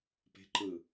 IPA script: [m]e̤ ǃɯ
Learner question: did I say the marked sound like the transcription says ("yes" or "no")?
no